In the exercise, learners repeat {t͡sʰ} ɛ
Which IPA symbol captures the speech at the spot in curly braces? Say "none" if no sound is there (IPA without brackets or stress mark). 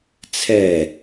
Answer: t͡sʰ